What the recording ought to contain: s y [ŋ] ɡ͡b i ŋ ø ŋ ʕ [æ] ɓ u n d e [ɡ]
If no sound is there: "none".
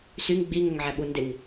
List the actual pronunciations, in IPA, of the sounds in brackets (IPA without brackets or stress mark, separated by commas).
ŋ, æ, ŋ